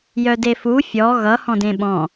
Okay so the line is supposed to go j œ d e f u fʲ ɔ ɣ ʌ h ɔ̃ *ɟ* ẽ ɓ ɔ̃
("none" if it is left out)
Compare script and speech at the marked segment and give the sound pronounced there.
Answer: d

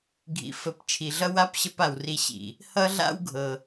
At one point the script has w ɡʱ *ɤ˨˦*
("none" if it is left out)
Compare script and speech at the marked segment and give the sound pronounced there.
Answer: ɤ˨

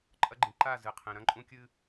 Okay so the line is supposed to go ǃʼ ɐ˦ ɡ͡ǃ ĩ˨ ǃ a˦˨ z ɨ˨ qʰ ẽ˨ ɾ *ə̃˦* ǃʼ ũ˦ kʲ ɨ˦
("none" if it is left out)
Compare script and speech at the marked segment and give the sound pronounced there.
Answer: ɐ̃˦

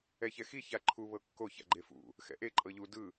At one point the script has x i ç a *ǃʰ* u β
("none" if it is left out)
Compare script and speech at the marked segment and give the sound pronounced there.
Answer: ǃʰ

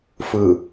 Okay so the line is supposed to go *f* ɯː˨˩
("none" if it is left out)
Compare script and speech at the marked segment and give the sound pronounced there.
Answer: f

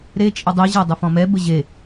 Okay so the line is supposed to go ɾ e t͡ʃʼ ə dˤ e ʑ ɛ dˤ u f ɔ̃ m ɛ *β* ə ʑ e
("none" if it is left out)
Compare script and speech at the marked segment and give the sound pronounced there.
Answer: b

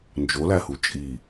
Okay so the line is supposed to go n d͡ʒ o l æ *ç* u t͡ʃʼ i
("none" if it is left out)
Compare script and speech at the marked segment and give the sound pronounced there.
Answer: h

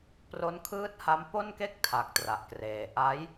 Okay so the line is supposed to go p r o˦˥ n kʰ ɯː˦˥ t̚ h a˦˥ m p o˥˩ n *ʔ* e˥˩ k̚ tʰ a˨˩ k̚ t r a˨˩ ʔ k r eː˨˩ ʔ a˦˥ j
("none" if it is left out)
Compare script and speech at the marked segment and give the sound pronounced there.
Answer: k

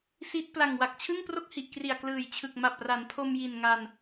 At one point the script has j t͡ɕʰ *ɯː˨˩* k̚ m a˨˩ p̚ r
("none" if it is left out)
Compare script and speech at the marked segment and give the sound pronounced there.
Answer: ɯ˨˩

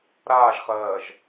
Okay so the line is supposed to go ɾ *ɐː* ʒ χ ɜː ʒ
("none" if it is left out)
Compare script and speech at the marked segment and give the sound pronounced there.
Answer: aː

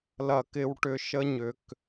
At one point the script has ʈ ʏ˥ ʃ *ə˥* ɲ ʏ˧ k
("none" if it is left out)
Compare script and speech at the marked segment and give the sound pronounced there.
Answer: ə˥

